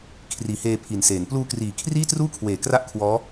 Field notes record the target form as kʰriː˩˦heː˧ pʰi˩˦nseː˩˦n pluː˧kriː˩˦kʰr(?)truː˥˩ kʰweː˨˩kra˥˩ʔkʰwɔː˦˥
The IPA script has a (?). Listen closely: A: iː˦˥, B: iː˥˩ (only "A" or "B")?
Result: B